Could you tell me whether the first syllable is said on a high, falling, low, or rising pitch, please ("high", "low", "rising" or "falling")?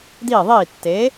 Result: falling